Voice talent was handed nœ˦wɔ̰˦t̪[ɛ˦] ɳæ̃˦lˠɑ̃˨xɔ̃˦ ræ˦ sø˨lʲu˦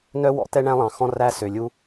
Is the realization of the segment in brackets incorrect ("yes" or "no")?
no